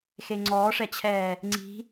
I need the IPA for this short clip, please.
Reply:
x e ŋ͡ǀ ɔː ʂ ɛ t͡ɕʰ ɛː | ŋ͡ǀ i̤

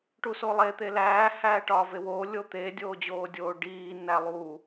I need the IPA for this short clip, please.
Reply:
ʈ u s o lˠ e t̪ e l æː h æː ʈ ɒː v e w oː lʲ o t̪ e dʲ oː d͡ʑ oː dʲ oː ɖ iː n æ lˠ u

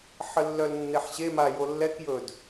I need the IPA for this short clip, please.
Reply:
ħ ə lː œ l nː e ħ ɕ e m a j o lː ɛ k j ɵ d

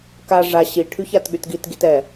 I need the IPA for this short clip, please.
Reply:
k a ʐ a ɕ i ʈʰ y ç a t ɠ y t ɡ i t ɡ i t ɛ

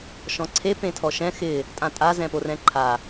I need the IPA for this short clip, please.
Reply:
ʃ ɔ̃ ǀʰ e p ẽ tʰ ɔ ʃ ɛ̃ x ɪ | tʼ ã tʼ a z ɛ̃ p o r ɛ̃ ǃʰ a

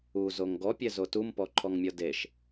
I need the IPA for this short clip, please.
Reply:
u z o ŋ ɡ ɔ pʲ ɛ z o t u m p ɔ ǃʰ ɔ ŋ mʲ ɒ d e ʃ

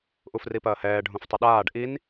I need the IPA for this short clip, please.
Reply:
ʔ u f r i p ɐː h ɛː ɖʱ ũ f tˤ ɘ ɗ aː ɖ ʔ i n

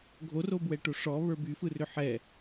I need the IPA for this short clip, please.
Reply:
ɡʱ o r o b w ɛ ʈ o ʂ ɔ β ə˞ b y f ɯ r ʏ ħ ɛ

